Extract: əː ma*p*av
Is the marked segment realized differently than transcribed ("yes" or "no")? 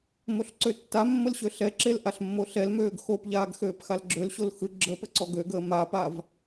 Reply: no